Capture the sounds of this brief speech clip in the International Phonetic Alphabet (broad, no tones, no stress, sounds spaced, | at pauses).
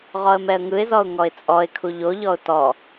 ʁ ɔ ə̯ m ɛ ə̯ ŋ ɯ ɪ̯ z ɔ ʊ̯ ŋ ɔ ɪ̯ t͡sʼ ɔ ɪ̯ kʰ u ʎ o ʎ ɔ ʊ̯ t ɔ